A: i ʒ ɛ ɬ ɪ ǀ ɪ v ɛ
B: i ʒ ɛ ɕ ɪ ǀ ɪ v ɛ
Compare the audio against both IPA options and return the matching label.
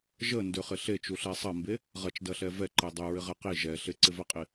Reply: A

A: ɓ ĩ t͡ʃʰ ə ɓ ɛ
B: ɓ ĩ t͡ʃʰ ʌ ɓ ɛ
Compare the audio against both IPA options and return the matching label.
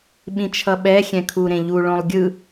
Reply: B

